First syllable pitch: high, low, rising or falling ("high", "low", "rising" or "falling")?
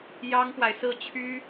high